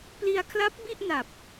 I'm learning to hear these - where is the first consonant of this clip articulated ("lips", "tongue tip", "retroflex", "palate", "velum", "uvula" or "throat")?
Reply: lips